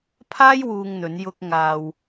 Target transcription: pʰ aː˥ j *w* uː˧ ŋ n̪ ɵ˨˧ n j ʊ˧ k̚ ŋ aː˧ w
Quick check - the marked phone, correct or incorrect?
correct